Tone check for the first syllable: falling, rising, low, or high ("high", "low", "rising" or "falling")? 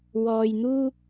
low